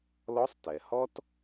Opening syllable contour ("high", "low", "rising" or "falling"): rising